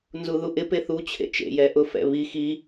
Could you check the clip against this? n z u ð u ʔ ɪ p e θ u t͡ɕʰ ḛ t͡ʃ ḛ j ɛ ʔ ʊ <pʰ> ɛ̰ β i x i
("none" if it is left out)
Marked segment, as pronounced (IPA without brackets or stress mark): f